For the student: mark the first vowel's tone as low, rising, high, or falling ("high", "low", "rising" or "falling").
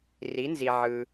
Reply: rising